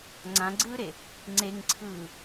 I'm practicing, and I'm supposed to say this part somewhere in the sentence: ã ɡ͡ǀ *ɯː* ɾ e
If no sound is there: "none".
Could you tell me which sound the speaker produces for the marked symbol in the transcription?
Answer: ɯː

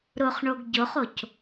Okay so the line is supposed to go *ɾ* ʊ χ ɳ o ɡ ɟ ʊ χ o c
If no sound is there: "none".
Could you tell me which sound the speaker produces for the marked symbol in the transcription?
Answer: ɾ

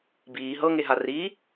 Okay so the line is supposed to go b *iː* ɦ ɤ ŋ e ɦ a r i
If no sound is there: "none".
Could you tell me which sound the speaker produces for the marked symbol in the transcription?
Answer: iː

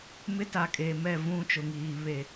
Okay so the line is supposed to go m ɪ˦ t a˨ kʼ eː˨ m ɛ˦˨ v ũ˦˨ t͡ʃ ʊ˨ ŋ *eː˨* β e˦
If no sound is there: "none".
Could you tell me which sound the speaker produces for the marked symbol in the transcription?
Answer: iː˨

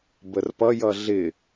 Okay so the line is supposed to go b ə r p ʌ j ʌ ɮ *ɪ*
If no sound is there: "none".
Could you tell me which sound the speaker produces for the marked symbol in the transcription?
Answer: ɪ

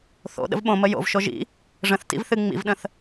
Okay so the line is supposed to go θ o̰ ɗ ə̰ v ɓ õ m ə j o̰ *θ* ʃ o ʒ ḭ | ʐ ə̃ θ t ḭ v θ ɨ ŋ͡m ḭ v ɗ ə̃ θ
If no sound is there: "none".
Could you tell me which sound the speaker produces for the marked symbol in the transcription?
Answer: v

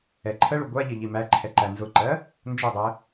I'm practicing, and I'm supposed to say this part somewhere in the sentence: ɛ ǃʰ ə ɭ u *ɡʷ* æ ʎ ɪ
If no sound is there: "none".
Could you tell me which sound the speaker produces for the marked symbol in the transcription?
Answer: ɡʷ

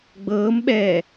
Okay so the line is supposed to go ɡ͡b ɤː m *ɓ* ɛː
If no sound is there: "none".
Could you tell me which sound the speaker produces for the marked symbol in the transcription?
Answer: ɓ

